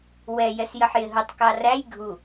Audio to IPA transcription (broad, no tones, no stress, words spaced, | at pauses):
wɛ jɛsjəħjɪɦʊtˤ kɑræj ɡʱu